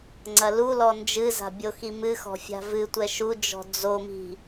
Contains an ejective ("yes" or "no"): no